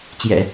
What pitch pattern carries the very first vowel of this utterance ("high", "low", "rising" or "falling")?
low